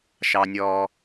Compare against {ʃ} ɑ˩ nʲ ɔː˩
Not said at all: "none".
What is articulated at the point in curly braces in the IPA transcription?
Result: ʃ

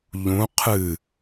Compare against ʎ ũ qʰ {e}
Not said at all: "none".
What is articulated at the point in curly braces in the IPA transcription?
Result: ɨ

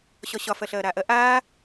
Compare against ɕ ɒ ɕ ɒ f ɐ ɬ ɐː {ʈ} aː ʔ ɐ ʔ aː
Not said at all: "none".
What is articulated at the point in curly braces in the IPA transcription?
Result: ɾ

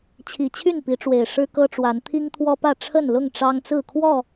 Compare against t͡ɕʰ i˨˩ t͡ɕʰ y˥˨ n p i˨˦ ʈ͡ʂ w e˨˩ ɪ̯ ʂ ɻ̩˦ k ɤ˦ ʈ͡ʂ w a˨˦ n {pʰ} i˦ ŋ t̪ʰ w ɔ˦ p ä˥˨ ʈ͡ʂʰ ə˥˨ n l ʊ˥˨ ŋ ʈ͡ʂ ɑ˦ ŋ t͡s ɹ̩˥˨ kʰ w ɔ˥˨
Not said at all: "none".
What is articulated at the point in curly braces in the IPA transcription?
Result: t̪ʰ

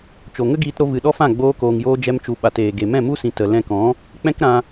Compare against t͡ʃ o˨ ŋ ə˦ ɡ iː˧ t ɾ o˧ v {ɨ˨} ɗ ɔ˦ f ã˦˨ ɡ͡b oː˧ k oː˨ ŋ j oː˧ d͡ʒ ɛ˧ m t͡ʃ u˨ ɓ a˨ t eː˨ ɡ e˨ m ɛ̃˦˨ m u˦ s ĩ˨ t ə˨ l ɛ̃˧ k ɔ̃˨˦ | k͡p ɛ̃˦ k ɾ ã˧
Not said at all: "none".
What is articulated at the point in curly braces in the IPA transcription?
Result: ɨ˨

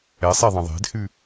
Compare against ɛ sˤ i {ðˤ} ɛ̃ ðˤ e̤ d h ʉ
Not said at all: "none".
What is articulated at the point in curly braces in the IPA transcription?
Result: ðˤ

